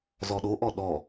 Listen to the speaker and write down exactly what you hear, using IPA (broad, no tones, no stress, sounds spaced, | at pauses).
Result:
z ɔ ɗ o ʔ ɔ ɗ ɔ